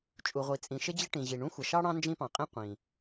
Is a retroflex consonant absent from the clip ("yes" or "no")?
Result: no